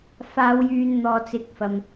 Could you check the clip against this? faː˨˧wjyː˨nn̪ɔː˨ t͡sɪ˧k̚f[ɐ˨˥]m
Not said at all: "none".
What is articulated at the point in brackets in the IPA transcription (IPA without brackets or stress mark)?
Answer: ɐ˧